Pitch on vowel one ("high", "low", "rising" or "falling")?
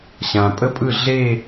low